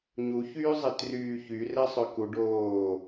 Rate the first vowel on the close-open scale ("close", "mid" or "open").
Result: close